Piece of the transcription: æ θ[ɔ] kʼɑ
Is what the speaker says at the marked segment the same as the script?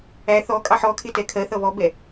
yes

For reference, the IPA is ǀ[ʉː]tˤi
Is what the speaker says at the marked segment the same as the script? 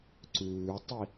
yes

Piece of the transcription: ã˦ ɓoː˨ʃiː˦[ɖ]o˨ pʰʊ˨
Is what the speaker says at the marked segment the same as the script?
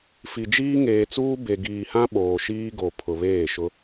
no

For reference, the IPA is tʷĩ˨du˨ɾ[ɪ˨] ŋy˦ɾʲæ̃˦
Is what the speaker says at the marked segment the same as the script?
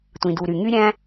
no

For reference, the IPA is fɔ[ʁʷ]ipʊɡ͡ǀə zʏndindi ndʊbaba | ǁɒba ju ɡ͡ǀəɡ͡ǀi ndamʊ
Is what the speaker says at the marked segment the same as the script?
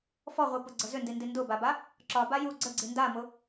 yes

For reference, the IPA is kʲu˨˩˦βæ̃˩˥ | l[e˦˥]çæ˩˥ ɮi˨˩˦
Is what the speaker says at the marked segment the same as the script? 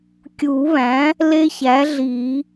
yes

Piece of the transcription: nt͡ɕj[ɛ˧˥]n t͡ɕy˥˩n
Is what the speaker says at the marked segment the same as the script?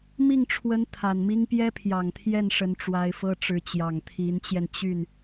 no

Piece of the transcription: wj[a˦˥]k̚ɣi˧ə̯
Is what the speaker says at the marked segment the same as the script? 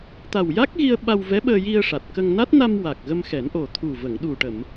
yes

